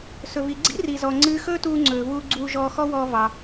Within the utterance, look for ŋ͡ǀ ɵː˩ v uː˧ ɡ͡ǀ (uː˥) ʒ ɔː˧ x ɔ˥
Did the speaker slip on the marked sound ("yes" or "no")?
yes